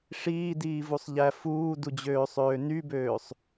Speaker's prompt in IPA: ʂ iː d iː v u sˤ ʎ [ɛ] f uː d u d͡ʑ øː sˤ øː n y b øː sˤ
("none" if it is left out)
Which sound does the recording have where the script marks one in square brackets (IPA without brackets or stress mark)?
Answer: æ